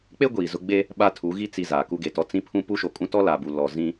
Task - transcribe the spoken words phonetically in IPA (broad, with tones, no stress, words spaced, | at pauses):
k͡pe˦ ɡʷiː˨zʊ˦ ɡ͡be˦ | ɓa˦tʰu˨˦ɣi˦ t͡si˨ zaː˨ku˦ɡe˨tɔ˦ t͡sĩ˦pʰũ˦ pu˦ʃo˨kʼũ˦ tɔ˦la˨bu˨ lɔ˨ zĩ˦